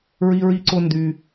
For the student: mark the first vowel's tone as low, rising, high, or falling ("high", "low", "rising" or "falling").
high